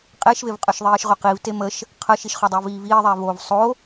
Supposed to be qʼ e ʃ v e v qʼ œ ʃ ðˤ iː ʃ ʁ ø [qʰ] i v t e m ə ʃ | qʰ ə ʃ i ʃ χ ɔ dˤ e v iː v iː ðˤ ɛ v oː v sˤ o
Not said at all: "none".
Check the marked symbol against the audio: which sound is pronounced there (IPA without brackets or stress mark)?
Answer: q